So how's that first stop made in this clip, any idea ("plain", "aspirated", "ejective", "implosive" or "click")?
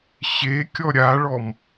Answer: plain